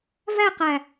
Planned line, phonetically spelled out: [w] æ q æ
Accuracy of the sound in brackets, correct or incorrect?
incorrect